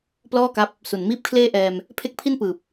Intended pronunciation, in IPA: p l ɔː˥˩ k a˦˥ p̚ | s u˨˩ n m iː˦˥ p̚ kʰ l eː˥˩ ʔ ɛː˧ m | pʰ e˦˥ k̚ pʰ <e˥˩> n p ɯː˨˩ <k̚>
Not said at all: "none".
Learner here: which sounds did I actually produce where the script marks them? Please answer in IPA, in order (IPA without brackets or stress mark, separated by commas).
i˥˩, p̚